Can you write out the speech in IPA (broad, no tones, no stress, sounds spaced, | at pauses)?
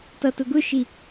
t ʌ t ʊ ɡ ʊ ʃ i